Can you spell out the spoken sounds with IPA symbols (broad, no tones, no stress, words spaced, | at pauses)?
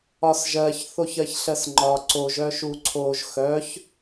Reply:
ɒsʒɜç θoçɜçɬɜsŋ͡ǃɒ ǀoʒ œʃuǀʰoʒ xœç